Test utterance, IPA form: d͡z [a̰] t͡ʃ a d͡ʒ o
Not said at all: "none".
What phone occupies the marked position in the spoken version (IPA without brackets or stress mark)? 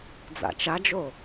a̰